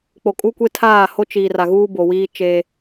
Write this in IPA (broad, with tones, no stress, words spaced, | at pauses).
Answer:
k͡po˨kʼu˦kʷe˦ tʰaː˦˨ho˦t͡ʃiː˨r a˨ɣuː˦bo˨wiː˦ t͡ʃe˦